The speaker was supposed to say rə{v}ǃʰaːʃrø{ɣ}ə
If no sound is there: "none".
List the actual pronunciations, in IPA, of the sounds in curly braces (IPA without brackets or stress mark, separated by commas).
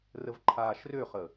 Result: v, χ